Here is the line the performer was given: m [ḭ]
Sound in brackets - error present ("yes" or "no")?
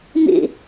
no